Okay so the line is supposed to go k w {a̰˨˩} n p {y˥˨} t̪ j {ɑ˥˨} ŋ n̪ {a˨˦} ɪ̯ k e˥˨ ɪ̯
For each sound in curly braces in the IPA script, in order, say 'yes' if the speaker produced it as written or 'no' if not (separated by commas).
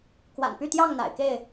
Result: yes, yes, yes, no